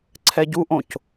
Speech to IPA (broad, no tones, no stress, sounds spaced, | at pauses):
ǀʰ ɛ ɟ u ʔ õ c